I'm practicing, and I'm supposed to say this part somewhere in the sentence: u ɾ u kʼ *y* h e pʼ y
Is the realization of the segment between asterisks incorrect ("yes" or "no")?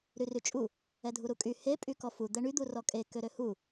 no